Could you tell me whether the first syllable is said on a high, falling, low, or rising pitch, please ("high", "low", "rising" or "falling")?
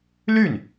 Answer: falling